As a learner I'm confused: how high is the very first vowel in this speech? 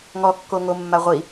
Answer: mid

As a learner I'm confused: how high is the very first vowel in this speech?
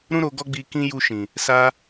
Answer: high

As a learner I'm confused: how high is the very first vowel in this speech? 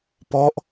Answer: mid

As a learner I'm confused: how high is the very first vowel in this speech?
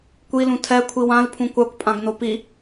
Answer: high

